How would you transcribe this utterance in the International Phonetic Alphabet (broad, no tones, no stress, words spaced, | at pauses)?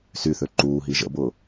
syθø ǃuːɦi ʒə̰bʊː